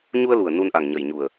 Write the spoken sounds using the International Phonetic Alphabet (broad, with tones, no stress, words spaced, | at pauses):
ɲu˧ə̯lu˨˩ə̯ nu˧nʔa˨˩ŋɲə˨˩jɲu˨˩ə̯